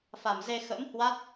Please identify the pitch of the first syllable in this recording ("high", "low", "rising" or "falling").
low